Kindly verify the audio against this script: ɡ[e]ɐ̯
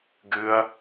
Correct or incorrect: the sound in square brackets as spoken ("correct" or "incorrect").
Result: incorrect